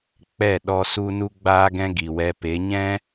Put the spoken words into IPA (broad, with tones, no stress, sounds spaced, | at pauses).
k͡p ɛ˦˨ ɗ ɔ˦ s u˦ n u˦ ɡ͡b aː˦ ɡ ɛ̃˦ ɡ i˨ w ɛ˧ p e˨˦ ɲ ɛ̃˦